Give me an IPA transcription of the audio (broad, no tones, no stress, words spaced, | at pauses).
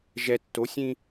ʒɛ tːosʲĩ